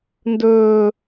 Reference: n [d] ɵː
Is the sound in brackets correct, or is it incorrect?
correct